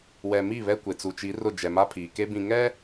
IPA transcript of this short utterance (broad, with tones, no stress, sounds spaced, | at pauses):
w ɛ˨ m i˦˨ β ɛ˦ kʷ e˨ t͡s u˨ t͡ʃ i˨˦ r ʊ˦˨ d͡ʒ ɛ˨ m a˦ pʰ iː˨ k e˦ b ĩ˨ ŋ ɛ˦